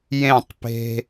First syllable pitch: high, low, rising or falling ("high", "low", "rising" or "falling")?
falling